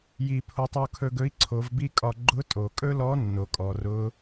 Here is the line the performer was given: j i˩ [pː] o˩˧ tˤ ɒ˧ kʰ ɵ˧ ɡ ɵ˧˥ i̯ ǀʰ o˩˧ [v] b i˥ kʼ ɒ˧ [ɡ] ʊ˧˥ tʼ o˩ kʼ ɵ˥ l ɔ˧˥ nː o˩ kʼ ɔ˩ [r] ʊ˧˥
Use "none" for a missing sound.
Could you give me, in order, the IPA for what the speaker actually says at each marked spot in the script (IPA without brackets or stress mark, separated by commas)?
pʰ, v, ɡ͡ǃ, r